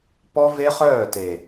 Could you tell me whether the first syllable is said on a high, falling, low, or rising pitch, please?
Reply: high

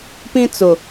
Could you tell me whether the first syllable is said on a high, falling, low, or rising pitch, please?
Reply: high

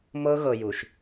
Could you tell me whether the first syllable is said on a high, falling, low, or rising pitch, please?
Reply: high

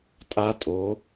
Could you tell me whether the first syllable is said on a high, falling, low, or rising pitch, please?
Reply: high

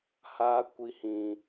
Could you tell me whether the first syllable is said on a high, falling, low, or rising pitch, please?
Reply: high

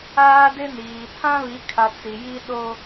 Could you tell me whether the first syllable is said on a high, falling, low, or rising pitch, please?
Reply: high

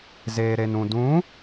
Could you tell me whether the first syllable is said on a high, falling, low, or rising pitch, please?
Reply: low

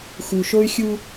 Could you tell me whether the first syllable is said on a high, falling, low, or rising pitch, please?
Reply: low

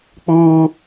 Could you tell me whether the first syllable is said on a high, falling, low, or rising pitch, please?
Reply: high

